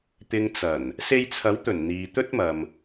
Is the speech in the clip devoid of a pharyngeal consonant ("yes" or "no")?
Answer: yes